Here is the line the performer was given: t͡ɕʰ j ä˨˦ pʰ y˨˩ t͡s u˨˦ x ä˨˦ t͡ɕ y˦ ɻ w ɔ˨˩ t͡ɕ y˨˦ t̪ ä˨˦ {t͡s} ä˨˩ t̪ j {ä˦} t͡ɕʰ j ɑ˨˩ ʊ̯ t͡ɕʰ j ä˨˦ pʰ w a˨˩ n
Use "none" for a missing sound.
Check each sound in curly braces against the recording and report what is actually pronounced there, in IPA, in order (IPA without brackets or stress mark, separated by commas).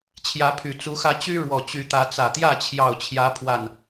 t͡s, ä˥˨